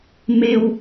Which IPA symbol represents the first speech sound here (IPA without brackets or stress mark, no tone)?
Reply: m